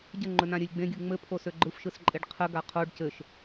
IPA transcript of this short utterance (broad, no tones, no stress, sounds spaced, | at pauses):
ɟ ə ŋ͡ǃ ɵ n ã ɾʲ ø lʲ ɡ͡b ẽ ɡʲ ɯ ŋ͡m ɘ pʰ o s ø ɡ͡ǃ ɯ f ʃ ɯ s ǃʼ e ɖ qʰ ə ɡ a qʰ o ɖ c ɘ ʃ